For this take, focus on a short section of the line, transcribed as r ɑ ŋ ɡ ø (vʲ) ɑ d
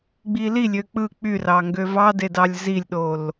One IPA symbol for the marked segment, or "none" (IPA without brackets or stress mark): v